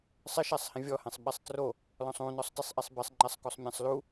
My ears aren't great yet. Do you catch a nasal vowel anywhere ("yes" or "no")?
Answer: yes